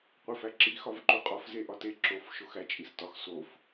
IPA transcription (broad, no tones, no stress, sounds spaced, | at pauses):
qʷ e f æ ǁ i x ɒ v ǃ u qʼ ɒ f z e ʔ ɒ t e ǁ o f ʃ o x æ t͡ʃʼ i s t ɒ x s o f